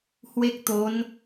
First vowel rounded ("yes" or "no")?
no